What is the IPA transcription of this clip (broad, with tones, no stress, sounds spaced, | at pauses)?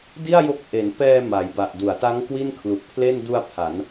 d i˥˩ a̯ j o˦˥ k̚ ʔ e˩˦ n p ɛː˧ m a˩˦ j b a˨˩ ʔ d u˩˦ a̯ t a˦˥ ŋ k w i˥˩ n kʰ l u˨˩ k̚ pʰ l e˥˩ n d u˧ a̯ pʰ a˩˦ n